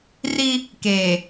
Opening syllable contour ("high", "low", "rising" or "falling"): high